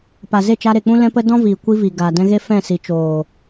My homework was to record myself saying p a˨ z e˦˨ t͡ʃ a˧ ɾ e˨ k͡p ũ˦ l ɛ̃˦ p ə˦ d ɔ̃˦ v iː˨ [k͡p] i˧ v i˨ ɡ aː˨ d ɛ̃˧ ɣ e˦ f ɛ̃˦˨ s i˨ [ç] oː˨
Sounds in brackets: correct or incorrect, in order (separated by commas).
incorrect, incorrect